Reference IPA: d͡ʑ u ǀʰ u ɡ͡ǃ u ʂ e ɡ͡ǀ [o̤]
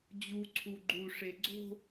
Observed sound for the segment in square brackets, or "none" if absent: o̤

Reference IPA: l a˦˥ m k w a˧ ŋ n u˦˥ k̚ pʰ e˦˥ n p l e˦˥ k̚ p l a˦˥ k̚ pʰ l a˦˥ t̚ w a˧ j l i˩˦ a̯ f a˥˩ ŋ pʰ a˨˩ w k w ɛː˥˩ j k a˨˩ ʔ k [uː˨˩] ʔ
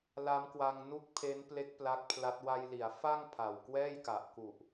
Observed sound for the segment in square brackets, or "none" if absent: u˨˩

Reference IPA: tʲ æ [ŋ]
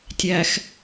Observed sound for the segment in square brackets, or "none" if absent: x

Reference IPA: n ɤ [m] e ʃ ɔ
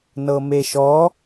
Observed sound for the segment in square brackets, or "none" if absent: m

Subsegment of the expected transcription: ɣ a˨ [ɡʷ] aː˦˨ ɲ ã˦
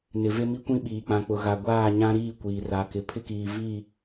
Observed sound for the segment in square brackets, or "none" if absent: ɡʷ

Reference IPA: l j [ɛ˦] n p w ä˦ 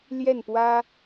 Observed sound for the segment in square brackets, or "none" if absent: ɛ˥˨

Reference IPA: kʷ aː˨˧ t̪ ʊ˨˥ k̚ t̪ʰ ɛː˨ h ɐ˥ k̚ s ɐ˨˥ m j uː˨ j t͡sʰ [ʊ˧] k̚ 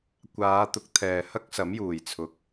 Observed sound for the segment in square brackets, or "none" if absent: ʊ˧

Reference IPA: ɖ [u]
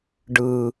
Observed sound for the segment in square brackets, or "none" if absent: ɯ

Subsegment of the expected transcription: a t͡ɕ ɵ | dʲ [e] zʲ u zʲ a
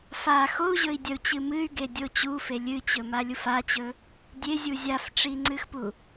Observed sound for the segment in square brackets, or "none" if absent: e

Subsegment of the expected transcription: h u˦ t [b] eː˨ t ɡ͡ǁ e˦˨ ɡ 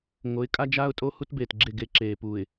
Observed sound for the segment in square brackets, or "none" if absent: b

